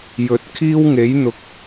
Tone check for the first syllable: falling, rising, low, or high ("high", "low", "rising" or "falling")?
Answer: rising